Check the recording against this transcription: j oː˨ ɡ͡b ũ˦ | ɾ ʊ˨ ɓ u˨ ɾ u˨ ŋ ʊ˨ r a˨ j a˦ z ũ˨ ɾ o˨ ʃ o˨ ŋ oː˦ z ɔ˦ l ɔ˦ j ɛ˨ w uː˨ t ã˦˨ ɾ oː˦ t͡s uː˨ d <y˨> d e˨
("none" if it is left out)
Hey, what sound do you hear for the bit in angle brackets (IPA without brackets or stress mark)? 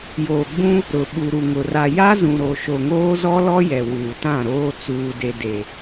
e˨